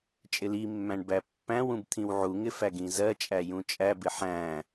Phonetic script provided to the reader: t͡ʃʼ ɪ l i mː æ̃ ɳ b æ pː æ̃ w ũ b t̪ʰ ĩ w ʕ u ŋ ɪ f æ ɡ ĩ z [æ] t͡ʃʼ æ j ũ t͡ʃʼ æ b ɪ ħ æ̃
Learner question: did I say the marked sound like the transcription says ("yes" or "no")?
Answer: no